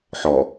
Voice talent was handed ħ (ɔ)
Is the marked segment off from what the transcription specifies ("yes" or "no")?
no